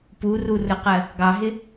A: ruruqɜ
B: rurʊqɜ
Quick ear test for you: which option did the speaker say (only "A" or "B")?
B